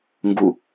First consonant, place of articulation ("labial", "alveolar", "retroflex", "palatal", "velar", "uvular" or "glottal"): velar